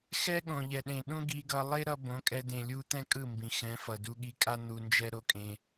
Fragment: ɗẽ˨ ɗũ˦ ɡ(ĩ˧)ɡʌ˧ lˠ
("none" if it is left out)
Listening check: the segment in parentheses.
i˧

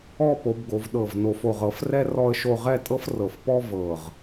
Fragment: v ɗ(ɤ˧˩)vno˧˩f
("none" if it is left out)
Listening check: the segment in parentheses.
ɤ˧˩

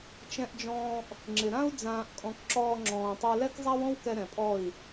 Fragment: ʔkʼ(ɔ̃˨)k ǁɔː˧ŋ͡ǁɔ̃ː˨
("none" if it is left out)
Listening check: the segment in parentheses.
ɔ̃˨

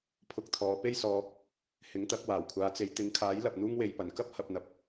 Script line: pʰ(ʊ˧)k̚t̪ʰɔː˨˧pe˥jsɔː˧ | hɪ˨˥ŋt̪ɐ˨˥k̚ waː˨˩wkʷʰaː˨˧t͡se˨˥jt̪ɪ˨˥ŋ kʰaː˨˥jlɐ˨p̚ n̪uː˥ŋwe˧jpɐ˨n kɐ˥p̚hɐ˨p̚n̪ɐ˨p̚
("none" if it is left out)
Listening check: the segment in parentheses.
ʊ˧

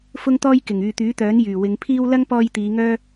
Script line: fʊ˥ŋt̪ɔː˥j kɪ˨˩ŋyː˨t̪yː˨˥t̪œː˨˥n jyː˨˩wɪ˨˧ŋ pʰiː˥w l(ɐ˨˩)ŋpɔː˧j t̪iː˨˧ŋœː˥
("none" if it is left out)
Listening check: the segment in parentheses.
ɐ˥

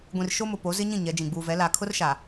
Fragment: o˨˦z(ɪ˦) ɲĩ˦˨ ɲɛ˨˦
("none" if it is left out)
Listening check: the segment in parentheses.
ɪ˦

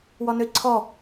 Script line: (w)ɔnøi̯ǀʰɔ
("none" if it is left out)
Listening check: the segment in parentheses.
w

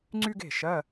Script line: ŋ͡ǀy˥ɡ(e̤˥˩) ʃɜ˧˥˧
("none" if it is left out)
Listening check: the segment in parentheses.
e̤˥˩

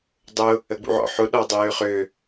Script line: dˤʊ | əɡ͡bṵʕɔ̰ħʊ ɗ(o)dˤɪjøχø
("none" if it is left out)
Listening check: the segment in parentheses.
ɔ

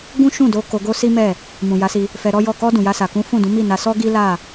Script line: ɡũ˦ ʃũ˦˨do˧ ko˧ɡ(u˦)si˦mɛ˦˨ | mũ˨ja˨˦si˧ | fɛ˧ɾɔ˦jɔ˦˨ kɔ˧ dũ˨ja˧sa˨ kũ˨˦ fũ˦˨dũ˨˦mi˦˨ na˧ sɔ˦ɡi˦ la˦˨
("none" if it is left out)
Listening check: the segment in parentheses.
o˦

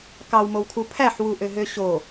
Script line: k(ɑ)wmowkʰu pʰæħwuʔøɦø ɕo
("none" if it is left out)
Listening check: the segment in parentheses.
ɑ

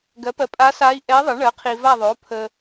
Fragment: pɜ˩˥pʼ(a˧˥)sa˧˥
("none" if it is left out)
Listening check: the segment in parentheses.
a˧˥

